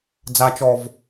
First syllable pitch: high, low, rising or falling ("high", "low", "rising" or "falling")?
high